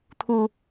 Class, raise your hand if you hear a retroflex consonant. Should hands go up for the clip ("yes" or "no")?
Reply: no